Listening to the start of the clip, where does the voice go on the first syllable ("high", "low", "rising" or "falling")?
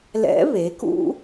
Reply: rising